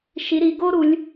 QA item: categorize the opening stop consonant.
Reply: plain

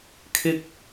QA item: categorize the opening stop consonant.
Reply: aspirated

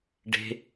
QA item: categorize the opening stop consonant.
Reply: plain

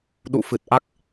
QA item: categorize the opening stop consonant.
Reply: implosive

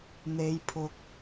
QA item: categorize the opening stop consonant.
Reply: aspirated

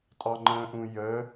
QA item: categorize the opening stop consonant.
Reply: ejective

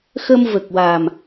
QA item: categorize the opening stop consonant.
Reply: plain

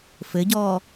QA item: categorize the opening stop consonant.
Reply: plain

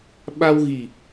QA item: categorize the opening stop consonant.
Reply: implosive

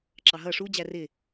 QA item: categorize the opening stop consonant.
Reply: click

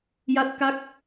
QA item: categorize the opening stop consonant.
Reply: plain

